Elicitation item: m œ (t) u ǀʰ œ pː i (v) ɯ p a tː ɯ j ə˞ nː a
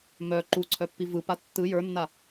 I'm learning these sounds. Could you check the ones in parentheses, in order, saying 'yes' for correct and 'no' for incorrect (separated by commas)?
no, yes